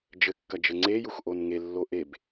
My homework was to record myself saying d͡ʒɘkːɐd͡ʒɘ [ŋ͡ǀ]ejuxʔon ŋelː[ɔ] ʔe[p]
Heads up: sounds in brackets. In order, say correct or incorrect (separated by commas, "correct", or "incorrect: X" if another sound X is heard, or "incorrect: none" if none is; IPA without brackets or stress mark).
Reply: correct, incorrect: o, incorrect: b